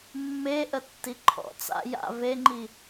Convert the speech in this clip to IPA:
mː e ʔ ə tː i ǃʰ ɔ̰ t͡s a̰ j a̰ v e ŋ͡ǃ i

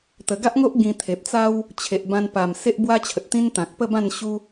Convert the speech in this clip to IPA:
t̪ ə˨˩ ɡ a˦ ʔ ŋ o˦ ʔ ɡ ĩ˧ t̪ʰ e˨ p̚ t͡s a˦ w | t͡ɕʰ e˨ ʔ b ã˧ n p a˨˩ m s e˦ ʔ b w a˦ t͡ɕʰ ə˨ t̚ t̪ ĩ˦ n t̪ ã˨ k̚ p ə˥˧ b ã˥˧ n ɕ u˦

